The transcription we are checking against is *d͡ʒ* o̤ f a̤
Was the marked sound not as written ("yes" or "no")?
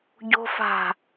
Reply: yes